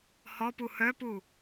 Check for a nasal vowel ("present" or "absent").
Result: absent